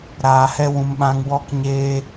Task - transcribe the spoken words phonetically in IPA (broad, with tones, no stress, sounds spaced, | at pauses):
ɾ aː˧ h ɛ˦ w ũ˧ m ɓ ã˦ ŋ w ɔ˦ k ɲ eː˦